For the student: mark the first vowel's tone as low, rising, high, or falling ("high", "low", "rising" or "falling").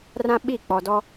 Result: high